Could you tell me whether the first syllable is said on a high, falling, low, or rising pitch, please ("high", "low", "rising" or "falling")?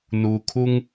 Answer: low